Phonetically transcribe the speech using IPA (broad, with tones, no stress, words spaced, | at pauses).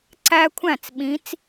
ǀæ˦kʷʰæ̃˥˩t͡sɓĩ˨˦t͡s